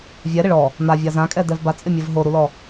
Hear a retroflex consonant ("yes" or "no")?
yes